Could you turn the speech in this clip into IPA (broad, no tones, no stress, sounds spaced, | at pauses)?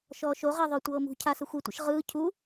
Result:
ʃ ɔː ʃ o ʁ ɛ ðˤ o tʷ ɤː m ṳ cʰ a s ɯ xʷ i tʷ ḭ ʃ ʁ ɯː cʰ u